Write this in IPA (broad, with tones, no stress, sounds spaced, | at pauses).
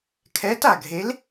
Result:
kʰ ɛː˨˥ t a˧˩ ɡʱ e˨˥ l